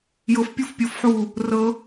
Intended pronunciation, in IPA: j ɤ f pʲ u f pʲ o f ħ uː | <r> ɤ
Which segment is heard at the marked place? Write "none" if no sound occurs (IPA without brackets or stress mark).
r